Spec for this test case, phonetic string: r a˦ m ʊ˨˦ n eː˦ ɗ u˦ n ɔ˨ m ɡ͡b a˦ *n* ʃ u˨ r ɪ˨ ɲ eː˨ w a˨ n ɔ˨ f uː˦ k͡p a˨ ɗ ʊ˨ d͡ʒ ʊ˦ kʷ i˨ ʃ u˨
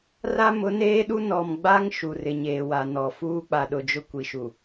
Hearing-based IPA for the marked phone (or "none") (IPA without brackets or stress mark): ŋ